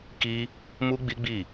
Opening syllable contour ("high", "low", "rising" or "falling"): high